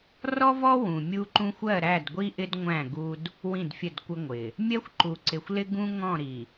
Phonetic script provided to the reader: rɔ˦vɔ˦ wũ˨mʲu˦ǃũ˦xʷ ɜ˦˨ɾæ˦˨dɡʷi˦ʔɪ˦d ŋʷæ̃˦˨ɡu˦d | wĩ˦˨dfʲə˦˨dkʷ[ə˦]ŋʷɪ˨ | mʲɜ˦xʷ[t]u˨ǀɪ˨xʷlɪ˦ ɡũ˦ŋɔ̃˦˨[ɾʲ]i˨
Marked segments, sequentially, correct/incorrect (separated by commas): correct, incorrect, incorrect